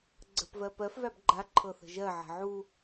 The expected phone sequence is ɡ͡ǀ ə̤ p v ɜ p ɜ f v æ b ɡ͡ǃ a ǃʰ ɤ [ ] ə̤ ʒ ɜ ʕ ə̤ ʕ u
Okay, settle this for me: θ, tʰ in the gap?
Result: θ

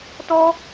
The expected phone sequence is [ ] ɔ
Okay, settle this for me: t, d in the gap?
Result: t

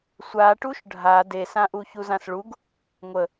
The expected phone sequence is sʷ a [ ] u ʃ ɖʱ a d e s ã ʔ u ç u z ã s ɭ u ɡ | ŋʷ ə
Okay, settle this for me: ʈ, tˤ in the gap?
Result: ʈ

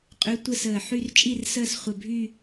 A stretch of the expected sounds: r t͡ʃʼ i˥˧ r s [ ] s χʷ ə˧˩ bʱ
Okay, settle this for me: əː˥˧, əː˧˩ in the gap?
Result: əː˥˧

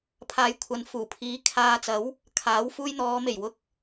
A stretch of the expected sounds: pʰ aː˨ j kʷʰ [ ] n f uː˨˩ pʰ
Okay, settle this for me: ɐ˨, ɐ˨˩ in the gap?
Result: ɐ˨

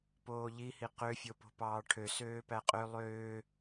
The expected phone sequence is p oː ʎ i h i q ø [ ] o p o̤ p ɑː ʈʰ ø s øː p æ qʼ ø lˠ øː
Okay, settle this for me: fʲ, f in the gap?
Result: fʲ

